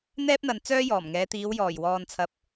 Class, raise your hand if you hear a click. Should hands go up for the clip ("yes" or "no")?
no